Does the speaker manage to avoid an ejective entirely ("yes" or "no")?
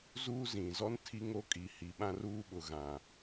no